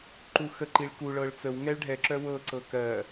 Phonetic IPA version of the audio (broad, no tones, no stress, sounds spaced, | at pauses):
ǃ u x ə ǃ i ɭ k u ɭ ɤ ɭ t͡s ə w ŋ ɛ ɭ ɖʱ ɛ ǁ œ w ɤ ǀ ɤ k ɜ